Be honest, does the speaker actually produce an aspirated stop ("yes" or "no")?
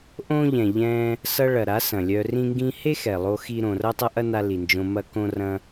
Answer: no